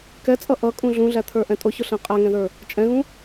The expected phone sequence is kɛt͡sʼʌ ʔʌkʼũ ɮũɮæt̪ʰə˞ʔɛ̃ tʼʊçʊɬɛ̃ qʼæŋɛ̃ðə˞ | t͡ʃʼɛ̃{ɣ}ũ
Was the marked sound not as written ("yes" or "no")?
no